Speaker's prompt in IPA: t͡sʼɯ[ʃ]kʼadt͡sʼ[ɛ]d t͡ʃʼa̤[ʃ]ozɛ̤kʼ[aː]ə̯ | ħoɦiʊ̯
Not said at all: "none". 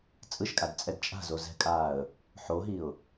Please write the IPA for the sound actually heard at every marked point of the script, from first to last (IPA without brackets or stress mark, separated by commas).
ʃ, ɛ, z, aː